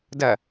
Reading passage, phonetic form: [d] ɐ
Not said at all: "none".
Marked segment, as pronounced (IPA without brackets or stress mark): d